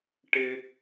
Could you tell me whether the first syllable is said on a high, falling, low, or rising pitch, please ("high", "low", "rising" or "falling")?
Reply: high